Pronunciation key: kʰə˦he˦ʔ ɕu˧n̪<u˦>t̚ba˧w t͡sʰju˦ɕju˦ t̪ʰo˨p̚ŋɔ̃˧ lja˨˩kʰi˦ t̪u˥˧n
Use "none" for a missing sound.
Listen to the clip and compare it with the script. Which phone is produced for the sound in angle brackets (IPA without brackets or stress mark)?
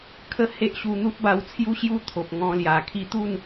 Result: u˦